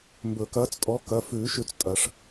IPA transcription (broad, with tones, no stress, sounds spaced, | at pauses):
m b ɵ˨˩˦ k ɐː˨˥ t͡s tʼ ɔ˨˥ k ɐ˩˧˩ f ʉː˨˩˦ ʃ ʉ˨˩˦ t͡s tʼ ɐ˨˩˦ ʂ